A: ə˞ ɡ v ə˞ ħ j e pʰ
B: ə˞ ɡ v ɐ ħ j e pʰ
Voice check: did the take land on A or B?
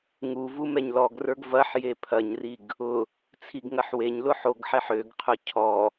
B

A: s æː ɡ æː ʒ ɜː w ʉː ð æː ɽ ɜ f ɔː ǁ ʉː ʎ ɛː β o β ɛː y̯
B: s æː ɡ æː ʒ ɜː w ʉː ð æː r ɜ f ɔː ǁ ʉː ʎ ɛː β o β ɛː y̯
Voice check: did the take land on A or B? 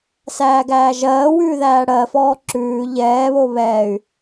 A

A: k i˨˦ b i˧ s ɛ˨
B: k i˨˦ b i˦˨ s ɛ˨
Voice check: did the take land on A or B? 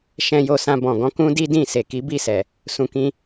B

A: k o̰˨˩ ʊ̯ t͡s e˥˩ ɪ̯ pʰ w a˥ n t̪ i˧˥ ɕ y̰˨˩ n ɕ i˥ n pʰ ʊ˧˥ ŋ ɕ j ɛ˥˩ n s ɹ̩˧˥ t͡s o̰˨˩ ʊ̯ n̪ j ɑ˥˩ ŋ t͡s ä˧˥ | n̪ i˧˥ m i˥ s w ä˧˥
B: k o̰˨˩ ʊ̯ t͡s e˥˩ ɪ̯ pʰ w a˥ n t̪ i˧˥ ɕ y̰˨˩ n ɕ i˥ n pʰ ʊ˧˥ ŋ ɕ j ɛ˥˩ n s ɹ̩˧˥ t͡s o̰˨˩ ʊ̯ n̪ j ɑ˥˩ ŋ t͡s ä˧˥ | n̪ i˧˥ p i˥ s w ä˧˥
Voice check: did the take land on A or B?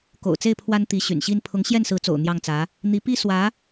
B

